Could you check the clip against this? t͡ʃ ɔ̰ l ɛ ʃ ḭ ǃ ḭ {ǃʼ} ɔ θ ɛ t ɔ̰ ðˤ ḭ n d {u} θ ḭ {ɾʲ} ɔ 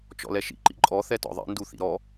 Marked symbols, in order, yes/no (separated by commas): yes, yes, no